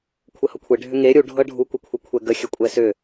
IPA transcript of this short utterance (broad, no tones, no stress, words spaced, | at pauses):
kʷʰəhɤkʷʰe ɖʱʏŋe ɾʲu ɖʱɤɖʱu kʷəkʷʰɤkʷʰɛɡə xʲəkʷʼɛsʏ